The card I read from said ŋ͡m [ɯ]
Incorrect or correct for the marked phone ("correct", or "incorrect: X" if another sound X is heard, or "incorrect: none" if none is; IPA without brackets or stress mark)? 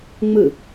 correct